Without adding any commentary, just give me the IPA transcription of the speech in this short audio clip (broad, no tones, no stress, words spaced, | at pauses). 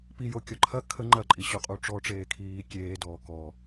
pijokʲɔ ǃʰɐ kʰə ŋ͡ǃɐǃʼiɕoqʼu ʈ͡ʂɔʈ͡ʂeːkʰiː kʲeːdɔː kɔ